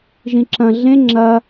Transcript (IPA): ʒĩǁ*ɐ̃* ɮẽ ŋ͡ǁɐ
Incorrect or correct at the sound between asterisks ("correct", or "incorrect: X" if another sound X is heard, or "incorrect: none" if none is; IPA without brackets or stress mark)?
correct